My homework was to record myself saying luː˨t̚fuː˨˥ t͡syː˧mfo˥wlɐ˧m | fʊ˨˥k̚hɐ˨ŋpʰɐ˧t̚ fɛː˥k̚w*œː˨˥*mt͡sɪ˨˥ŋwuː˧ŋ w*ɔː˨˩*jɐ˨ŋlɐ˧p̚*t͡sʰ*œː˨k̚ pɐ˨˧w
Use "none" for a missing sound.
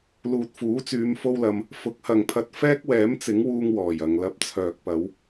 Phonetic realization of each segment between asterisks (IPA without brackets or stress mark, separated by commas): ɛː˨˥, ɔː˨˩, t͡sʰ